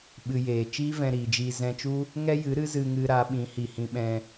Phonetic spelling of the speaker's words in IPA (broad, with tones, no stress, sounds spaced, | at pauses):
ɓ ɨ˧ j eː˨ t͡ʃ iː˦ v ɛ̃˧ ɾ iː˨ d͡ʒ iː˧ z ɛ̃˧ t͡ʃ u˦ | ŋ ɛ˦ j ɨ˨˦ ɾ ɨ˦ z ɨ˧ ŋ ɨ˧ ɾ a˨˦ ɓ ĩ˨˦ h i˨ h ĩ˧ ɓ ɛ̃˧